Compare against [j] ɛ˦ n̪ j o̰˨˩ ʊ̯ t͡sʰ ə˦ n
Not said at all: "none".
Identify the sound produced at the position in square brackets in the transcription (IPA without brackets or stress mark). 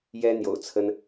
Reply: j